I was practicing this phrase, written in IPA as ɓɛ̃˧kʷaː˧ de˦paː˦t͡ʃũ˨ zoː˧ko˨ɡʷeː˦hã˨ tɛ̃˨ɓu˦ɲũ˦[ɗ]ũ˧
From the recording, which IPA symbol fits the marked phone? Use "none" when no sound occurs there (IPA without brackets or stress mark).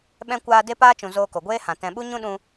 ɗ